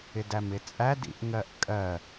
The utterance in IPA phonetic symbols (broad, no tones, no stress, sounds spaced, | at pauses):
ɪ d æ m ɪ t͡sʼ æ d ḭ ʔ ŋ ɜ ʔ kʼ ɜ